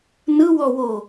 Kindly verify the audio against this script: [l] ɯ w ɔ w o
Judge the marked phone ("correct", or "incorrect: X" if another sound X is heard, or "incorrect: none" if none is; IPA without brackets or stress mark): incorrect: n